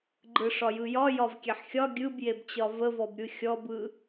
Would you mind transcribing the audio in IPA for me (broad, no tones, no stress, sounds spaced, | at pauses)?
ɡ͡ǃ ɯ ʂ ɒ j ɯ j ɒ j ɒ v kʲ e ħ xʲ ɒ ɡʲ ɯ b j e b t͡ɕ ɒ v ə v ɔ b ɾʲ ɯ xʲ ɔ b ɯ